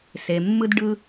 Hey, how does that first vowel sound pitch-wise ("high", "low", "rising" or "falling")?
low